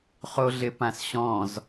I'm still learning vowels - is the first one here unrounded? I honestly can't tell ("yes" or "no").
no